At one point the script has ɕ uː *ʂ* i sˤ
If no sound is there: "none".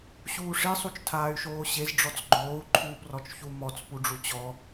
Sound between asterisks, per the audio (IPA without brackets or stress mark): ʂ